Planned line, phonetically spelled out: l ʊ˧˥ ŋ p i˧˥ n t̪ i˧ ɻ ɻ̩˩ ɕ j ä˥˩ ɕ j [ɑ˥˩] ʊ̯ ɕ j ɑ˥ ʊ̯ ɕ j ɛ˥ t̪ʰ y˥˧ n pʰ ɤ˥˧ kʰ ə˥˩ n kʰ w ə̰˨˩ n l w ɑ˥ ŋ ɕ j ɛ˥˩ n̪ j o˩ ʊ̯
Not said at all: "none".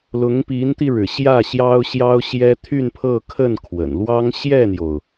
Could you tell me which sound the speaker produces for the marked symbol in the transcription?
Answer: ɑ˥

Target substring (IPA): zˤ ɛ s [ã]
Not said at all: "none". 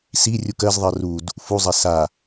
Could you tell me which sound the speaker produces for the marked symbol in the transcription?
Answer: a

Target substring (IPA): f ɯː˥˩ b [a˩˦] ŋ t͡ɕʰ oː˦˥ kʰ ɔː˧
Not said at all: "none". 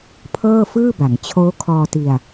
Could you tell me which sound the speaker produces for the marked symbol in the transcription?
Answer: a˩˦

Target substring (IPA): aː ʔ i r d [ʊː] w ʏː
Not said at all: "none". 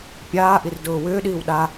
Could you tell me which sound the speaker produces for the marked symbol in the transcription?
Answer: ʊː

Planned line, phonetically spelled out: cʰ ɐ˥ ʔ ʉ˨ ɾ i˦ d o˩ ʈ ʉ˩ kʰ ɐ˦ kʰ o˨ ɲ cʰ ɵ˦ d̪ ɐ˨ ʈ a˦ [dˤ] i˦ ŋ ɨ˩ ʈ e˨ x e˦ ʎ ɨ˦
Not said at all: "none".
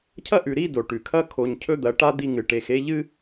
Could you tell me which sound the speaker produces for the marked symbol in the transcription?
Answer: d̪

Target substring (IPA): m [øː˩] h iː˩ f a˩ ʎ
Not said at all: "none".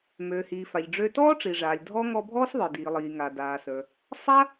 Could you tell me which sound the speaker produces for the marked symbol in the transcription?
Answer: øː˩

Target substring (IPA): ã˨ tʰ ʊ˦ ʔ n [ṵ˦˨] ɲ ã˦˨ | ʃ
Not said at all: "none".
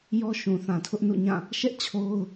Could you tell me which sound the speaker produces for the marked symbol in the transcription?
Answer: ṵ˦˨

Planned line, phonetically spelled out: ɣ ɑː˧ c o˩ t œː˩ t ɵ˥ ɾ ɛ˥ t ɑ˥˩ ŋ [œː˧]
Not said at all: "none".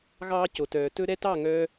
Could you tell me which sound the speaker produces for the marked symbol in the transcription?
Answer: œː˧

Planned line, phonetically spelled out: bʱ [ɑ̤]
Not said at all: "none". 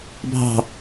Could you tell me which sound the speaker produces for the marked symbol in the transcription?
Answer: ɑ̤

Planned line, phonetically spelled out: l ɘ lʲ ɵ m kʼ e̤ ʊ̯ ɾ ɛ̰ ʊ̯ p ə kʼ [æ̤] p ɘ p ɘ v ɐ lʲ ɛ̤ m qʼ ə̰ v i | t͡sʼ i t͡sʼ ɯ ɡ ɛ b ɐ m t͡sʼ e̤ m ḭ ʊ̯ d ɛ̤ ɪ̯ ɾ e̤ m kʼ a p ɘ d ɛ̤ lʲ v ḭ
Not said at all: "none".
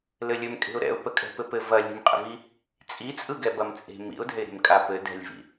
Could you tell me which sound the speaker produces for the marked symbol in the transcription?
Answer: ɛ̤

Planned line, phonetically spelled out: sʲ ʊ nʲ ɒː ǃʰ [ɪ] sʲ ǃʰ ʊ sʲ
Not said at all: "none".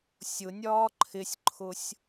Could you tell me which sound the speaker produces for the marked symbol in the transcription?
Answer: ɪ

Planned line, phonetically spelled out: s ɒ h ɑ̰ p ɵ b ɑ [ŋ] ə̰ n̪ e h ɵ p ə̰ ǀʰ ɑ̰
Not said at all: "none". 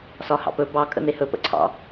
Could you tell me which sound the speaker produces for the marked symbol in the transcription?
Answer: kʼ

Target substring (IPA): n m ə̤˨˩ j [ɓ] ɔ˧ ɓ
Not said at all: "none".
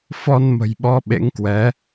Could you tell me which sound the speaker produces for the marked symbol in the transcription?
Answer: ɓ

